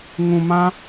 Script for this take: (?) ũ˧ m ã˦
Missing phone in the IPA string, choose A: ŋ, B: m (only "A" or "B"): A